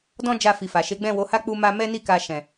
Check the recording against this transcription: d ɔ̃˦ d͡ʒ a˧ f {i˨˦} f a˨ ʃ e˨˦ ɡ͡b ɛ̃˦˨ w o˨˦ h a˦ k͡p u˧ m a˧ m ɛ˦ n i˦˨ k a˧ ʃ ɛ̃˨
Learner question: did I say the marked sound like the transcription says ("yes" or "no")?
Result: no